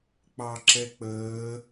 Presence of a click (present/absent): present